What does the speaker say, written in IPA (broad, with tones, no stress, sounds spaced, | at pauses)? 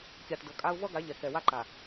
kʲ a˨ t d ɤ˨ kʼ a˦ ʊ̯ v ʌ˦ ɡ a˨˦ ʎ ɛ˨ k ɛ˨ w a˦ ǃ a˨